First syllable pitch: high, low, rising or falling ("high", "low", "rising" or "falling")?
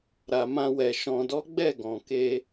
low